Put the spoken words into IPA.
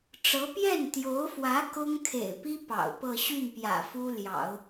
ʈ͡ʂ ɤ˧˥ p j ɛ˥˩ n t̪ j o˧˥ ʊ̯ f w ä˧˥ k ʊ˥ ŋ kʰ ḛ˨˩ ɪ̯ p i˥ p ɑ̰˨˩ ʊ̯ p ɤ˥˧ ɕ y˥˩ n p j ä̰˨˩ f u˥ l j ɑ̰˨˩˦ ʊ̯

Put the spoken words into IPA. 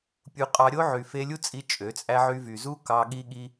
pʲ u˧ qʼ ɑ˧ ɾʲ o˦ ʕ y˨ f e˧ lʲ u˦ t͡sʼ i˧ t͡ʃʼ ø˨˦ t͡sʼ æ˦ ʕ y˧ v y˨ z u˦ k ɑ˧ ɠ i˦ ɠ i˦

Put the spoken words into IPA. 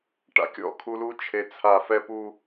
ʈ a̰˨ kʲ ɔ̰˦ kʰ u˨ l u˦ t͡ʃʰ e˨ t͡sʰ a˨ f ɛ˦ p u˦

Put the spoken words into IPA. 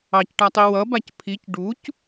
ɑ c ʈ a tˤ i w ʌ b a c pʰ i c ɖ u c

